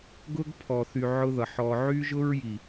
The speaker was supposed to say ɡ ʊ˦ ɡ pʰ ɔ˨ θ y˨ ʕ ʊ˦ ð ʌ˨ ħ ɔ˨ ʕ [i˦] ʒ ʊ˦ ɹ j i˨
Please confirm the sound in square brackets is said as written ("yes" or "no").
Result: no